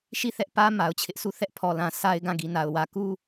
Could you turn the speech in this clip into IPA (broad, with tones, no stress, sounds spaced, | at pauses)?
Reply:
ʃ i˦˨ θ ɛ˦ ʔ p ä˦ m a˨ ʊ̯ t͡ɕʰ ɪ˦ ʔ s u˦˨ θ ɛ˦ ʔ pʰ ɔ˨ l ã˨ s a˦ ɪ̯ ɡ ã˦˨ ɡ i˨ n a˨ ʊ̯ w ä˨ k u˦